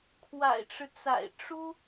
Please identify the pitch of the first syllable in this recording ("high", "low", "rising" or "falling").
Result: low